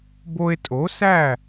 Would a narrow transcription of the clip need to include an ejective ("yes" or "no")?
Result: yes